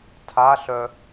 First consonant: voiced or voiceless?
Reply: voiceless